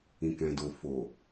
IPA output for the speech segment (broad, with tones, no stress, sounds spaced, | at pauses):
ĩ˨ k ɛ̃˨ d o˨ f o˨